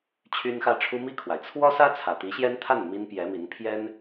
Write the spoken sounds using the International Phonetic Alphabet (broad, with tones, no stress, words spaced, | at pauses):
t͡ɕʰy˥nxä˥ʈ͡ʂʰu˥ mi˥˩kʰwa˩ɪ̯ t͡sʰwɔ˥sä˥ t͡sʰä˨˩t̪i˧˥ɕjɛ˥nt̪ʰa˥˩n mi˥npjɛ˧˥mi˧˥n pʰjɛ˥n